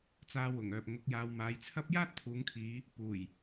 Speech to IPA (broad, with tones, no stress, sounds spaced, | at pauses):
t͡s aː˧ w ʊ˨˩ ŋ œː˨ p̚ ŋ ʊ˨˥ k̚ j aː˨˧ w m aː˨˥ j t͡sʰ ɐ˥ p̚ j aː˥ t̚ t̪ʰ uː˨˧ ŋ kʰ iː˨˧ | p uː˨˩ j